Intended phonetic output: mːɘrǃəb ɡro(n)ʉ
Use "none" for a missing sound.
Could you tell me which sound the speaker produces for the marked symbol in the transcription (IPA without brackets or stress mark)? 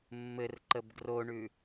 ɳ